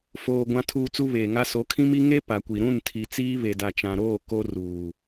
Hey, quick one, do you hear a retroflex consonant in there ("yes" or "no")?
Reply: no